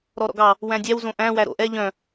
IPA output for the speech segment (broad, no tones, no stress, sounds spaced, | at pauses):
ɾ ɔ ɾ ɔ̰ ɡ ɑ | w æ̃ dʲ æ w z õ ʔ æ̃ w æ ɾ o̰ ʔ ɛ ʎ œ̃